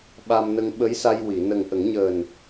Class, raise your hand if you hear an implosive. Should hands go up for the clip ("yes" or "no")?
yes